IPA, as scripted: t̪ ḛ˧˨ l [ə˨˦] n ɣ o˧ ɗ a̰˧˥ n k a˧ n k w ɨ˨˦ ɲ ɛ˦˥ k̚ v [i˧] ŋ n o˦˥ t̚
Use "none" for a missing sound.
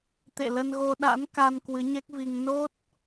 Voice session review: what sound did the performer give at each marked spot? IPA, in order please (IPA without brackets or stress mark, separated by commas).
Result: ə˧, i˧